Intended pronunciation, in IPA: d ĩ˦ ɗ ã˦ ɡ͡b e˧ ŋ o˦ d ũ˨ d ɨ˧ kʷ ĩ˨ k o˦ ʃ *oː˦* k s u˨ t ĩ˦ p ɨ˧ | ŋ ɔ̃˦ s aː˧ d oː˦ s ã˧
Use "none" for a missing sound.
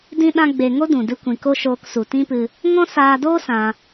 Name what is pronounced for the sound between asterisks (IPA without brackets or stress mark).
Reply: oː˧